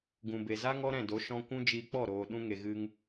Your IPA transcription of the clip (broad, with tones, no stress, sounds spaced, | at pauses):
ɡ ũ˨ b e˨ z a˦ ŋ ɔ˦ ɾ ɛ̃˦˨ d o˨˦ ʃ ɔ̃˧ kʷ ũ˦ d͡ʒ iː˧ k͡p ɔ˦˨ ɾ oː˨ ɗ ũ˦ ŋ e˨ ɣ ɨ˧ ŋ